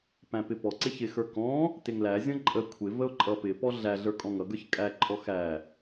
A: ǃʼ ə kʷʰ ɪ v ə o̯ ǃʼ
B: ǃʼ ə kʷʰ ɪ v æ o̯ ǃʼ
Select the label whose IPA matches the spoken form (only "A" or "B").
A